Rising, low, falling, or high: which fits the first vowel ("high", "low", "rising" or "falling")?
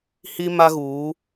high